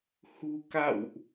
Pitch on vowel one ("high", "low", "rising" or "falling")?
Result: low